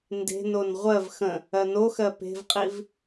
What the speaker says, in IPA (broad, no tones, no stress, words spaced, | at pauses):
nde̤non ʁʷɜv xə̃ | ɜnoxɜ pe̤vqʼiv